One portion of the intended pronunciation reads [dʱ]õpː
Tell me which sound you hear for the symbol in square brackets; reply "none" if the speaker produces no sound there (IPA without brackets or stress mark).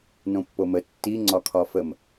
n